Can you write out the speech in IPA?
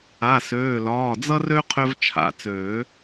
a˩˧˩ s øː˩˧˩ l ɒː˩˧˩ d͡z ʌ˦ r ø˦ qʰ ø˦ v t͡ʃʰ a̰˩˧˩ t͡s øː˨˩˦

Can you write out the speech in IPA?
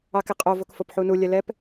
ɑ k ɪ qʼ o v o k f o p ħ u n u lʲ ɛ l ɛ p

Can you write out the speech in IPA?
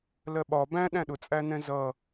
l ɜ ɓ ɒ b æ̃ ɗ æ̃ ɗ ʊ t͡sʼ æ n ɛ̃ z ʌ

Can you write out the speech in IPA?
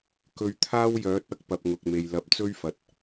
k ɵ˧ ɥ t̪ʰ aː˥ w j œː˨˥ t̚ ɐ˨ k̚ p ɐ˨ p̚ ŋ ʊ˨ k̚ m e˨ j l ɐ˨ p̚ t͡s ɵ˥ ɥ f ɐ˨˥ t̚

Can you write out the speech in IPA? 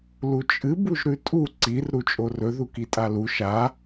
l u t͡ʃʼ ɨ b u ʒ ɾ ʉ tʼ u ǀ i r ɾ u t͡ʃʼ o r ɵ ð u k i tʼ a l u ʃ a

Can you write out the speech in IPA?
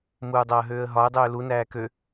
m uː dˤ ɐː ɦ øː ə̯ ɦ ɒ ə̯ dˤ øː l u n æː k ø

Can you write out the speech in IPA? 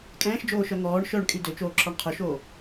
kʼ ɛ̃ː ʃ d͡ʒ oː ʃ œ ŋ ɔː ɳ ʃ œ ɳ kʼ y d ø t͡ʃ oː ǁ ɔ ɳ qʰ ɵ ʃ oː

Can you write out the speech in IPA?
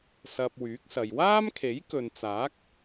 s ɐ˧ p̚ w yː˨˥ k̚ s ɐ˨ j w aː˥ m kʰ e˨˥ j k ɵ˨ n t͡s aː˨˥ k̚

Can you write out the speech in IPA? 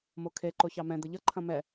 m o kʰ e ǃ o ç ɑ m ɛ̃ d̪ ə ʎ ʌ ǃʰ ɐ̃ m ɛ

